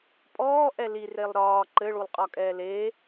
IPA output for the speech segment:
pʼɔːʔɛ lirelˠ ɾɒː ǃɘɭulˠqʼɒkʼɛː le

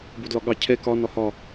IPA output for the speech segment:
bodlɒɠɑ cʰɛ kɒ nɒhɒ

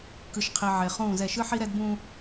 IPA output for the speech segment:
kɯ˨ʃqʰi˨ʕe˨ χũː˦˨zɛ˦˨ ʃɯ˦ħi˦ɾɛ˦dbũː˦

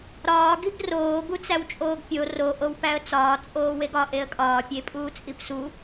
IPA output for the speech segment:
ɾɒː ɡiɡroː ɡut͡sæwt͡ʃʼoːɡpʲo ro ʔowpæə̯t͡sɒː t͡sʼoːweɡɒ ʔeə̯kʼɒː pʲepʼuːt͡sʼipsu

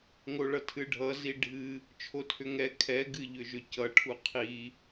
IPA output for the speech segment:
ŋoɭʌtʰɨɖʱʌ ziɖʱɨ | t͡ʃʰotʰʏŋɛ kʰɛ ɡɨʎʏʒʏcʌ ʈʰuqʰi

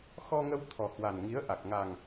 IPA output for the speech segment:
xɔ˧ŋə˧w t̪ʰɔ˨˩ hwa˨˩nŋi˨˦ə̯ʔa˨˩k̚ ŋa˨˩ŋ

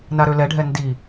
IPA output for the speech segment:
naɾølɛɖʱɛ ndi

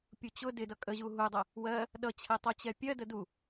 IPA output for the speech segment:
pʲut͡ɕʊ dɪ dʌkʼəʑu ɦudˤə | wɜ | ɗʌt͡ɕʰɛ tˤut͡ɕɛpʲɜdə du

